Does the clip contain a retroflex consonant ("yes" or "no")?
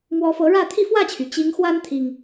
yes